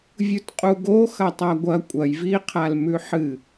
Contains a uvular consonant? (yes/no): yes